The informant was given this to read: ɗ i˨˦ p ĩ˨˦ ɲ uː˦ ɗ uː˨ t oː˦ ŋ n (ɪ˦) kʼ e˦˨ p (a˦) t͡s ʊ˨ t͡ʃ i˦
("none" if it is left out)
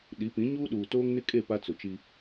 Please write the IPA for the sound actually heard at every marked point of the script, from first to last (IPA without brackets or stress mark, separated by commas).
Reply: ɪ˦, a˦